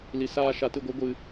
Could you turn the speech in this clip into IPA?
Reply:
li˨saː˧ ʃa˨tɨ˦˨ɡʷɨ˨˦ ɡʷɨ˧

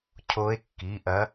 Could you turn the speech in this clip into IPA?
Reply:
cʰo˧˥e̯kːi˩˧˩ʔɐ˧˥

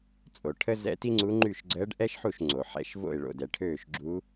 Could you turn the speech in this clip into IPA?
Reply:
t͡sʼo˩ʈʰə˥ zɛ̰˧˥ti˥ŋ͡ǀu˧˥ ŋ͡ǃy˥˩ʃ ɡ͡ǀəː˧˥ɖʔɛ˥ʃħu˥˩ʃ ŋ͡ǀo˩ ħɛ̰˧˥ʃ vo̰˥˩ɪ̯ɭo̰˧˩dɛ˩ ʈʰøː˥˩ʃɡ͡ǁu˧˥

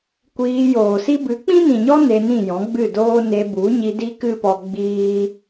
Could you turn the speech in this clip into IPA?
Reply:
kʷiː˧joː˨si˦ bɨ˨˦k͡pĩ˦nĩ˨ɲɔ˦ ne˧nĩ˦˨ jɔ̃˨˦ɡ͡bɨ˦˨doː˦ ne˧bu˨˦ɲi˧ di˦kɨ˦pɔ˧ ɡ͡biː˦

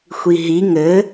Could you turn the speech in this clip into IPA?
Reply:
xʷiɦi ŋɘ

